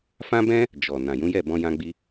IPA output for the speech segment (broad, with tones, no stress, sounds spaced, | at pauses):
f ã˦ b ɛ̃˦ | d͡ʒ ɔ˨ n ã˨ j ũ˨˦ j ɛ˦˨ b ɔ̃˧ j ã˧ ɡ͡b i˧